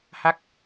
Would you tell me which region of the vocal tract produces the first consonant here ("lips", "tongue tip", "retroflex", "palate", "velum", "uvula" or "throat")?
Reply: throat